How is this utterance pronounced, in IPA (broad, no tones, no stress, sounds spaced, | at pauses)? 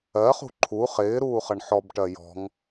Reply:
ɜ χ ṳ ǃʰ u χ ɪː ɾ uː χ ʌ ɳ ħ ɔ b ʈ ɜ j ɔ̤ ŋ